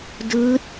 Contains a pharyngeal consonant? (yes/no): no